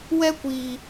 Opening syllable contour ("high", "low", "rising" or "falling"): high